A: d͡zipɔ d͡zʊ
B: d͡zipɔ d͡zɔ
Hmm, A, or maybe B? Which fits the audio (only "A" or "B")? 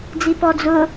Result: A